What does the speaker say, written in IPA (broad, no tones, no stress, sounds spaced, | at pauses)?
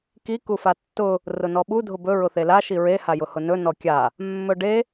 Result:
k i k u f a tː ʊ | r ʊ n ɔ ɓ u dʱ ʊ b ɵ ɹ ʊ θ e l a ʃ i ɹ e h a j ʊ h ʊ n ɵ n ɔ kʲ a | mː ɵ ɖ e